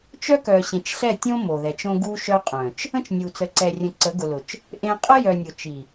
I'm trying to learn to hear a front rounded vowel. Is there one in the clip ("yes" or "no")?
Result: yes